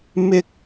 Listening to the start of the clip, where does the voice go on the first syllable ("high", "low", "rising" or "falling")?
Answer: high